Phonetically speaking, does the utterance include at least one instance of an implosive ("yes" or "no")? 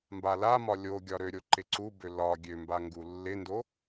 no